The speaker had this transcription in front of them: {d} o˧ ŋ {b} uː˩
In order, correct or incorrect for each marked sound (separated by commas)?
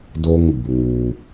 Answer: correct, correct